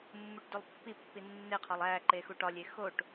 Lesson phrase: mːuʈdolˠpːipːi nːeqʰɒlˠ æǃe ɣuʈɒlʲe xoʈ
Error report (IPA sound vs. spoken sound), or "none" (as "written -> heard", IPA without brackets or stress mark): ɣ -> x